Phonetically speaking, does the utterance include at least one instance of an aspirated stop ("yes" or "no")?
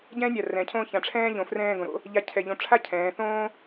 yes